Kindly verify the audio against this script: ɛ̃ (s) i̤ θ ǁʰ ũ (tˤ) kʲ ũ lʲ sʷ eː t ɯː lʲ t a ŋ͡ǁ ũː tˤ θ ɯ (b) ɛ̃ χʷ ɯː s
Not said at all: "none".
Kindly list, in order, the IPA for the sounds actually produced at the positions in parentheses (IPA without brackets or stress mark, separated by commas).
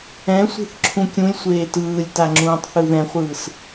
sʷ, none, ð